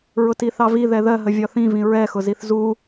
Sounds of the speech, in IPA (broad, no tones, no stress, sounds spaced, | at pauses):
ɹ ʊ t i θ ɑ v i ð ɛ ð ɜ ɦ ə vʲ ɒ θ ĩ v ĩ ɹ ɛ x ʊ z i θ z u